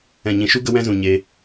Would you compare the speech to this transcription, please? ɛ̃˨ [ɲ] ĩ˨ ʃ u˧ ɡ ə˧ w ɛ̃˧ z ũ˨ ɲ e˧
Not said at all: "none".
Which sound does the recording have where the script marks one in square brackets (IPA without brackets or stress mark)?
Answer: ɲ